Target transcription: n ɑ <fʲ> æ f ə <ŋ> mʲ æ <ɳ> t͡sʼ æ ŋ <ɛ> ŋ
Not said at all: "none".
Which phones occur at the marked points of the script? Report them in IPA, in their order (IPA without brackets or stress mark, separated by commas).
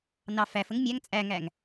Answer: f, ŋ, ŋ, æ